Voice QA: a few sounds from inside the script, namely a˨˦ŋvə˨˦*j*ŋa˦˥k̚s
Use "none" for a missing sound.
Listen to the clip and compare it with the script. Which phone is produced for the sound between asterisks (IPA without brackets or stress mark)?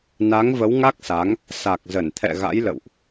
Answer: w